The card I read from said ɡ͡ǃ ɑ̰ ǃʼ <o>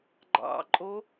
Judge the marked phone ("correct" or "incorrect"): correct